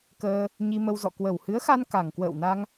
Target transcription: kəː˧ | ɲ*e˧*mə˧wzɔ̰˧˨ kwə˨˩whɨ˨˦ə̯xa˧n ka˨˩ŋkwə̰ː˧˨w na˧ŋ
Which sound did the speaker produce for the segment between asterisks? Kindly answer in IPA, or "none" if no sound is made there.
i˧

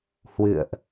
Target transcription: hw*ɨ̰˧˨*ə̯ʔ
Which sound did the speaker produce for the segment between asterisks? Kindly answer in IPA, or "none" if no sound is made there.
ɨ̰˧˨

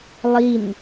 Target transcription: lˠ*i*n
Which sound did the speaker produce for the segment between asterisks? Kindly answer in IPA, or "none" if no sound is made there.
i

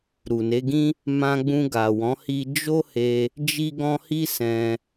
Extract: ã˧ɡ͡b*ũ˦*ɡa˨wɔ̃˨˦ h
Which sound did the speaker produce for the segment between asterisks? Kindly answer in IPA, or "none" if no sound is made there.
ũ˧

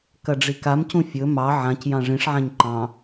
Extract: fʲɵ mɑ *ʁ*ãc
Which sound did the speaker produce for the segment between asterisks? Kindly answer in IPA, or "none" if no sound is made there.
ʕ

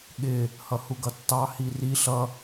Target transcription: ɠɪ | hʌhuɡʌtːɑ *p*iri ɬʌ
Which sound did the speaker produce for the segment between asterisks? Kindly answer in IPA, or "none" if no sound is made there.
h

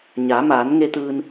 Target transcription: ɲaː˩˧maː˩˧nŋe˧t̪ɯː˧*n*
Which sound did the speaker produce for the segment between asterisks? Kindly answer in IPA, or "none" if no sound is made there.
n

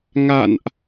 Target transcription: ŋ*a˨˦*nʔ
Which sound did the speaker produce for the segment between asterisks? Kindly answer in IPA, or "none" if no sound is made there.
a̰˧˨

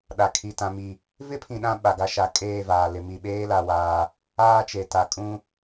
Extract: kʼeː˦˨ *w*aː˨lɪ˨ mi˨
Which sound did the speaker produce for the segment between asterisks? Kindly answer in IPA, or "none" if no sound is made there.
v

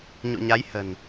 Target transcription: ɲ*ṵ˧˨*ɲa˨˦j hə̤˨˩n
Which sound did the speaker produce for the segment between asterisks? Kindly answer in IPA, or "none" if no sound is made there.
ṵ˧˨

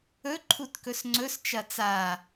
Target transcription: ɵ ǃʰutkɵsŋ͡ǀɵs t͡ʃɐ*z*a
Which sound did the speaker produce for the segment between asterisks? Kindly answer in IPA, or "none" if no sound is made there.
t͡s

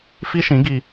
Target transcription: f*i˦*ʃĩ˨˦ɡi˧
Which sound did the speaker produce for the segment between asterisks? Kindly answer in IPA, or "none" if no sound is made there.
i˦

